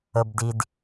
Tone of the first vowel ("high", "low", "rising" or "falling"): low